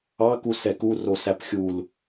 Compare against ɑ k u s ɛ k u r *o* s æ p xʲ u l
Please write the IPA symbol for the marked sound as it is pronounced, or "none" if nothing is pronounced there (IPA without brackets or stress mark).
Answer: o